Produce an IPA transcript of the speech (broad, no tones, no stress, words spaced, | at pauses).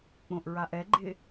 k͡põʔɹaʔɛɡ͡ǃɪ